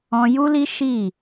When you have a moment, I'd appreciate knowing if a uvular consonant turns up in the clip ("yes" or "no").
no